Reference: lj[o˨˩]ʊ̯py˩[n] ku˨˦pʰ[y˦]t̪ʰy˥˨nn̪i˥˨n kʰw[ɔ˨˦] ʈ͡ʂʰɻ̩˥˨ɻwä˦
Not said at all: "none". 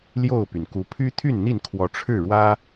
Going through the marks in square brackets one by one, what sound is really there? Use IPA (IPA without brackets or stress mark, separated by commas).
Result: o˥˨, n, y˦, ɔ˨˦